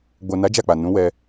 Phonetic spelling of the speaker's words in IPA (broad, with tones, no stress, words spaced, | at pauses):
ɡ͡bo˨na˨˦ d͡ʒa˦˨k͡pa˨ nũ˨˦wɛ˧